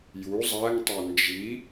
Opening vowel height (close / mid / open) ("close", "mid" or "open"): close